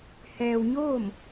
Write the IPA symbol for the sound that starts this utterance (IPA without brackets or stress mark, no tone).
h